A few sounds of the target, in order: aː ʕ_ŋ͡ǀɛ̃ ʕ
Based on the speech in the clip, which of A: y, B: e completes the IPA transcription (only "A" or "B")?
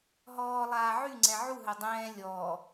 A